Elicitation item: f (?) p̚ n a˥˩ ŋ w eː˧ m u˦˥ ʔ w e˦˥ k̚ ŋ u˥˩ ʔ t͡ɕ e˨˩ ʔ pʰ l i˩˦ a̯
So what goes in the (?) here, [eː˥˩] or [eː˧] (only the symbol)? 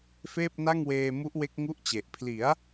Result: eː˥˩